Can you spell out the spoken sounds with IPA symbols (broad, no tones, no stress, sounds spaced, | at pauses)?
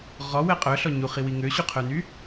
ʁ ɔ w ɛ qʼ œ ɬ ɔ ɲ u χ i w i ŋ ø ɕ u qʰ œ n y